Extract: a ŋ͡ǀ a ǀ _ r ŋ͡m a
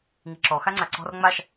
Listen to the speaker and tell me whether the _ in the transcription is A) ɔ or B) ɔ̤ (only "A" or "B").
B